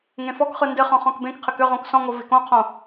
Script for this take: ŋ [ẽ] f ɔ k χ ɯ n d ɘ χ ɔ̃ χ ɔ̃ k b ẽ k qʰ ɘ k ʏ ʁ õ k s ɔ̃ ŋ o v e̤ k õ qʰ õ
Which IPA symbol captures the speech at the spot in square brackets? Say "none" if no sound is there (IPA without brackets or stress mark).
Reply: ẽ